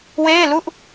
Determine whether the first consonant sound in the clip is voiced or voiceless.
voiced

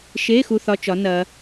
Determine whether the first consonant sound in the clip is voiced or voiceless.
voiceless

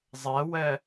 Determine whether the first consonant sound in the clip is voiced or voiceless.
voiced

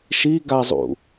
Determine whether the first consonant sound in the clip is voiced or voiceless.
voiceless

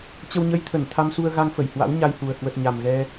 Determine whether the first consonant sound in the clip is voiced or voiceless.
voiceless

